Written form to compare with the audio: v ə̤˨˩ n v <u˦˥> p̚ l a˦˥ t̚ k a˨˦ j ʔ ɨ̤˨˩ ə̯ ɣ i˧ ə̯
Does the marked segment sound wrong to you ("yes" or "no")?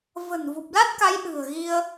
yes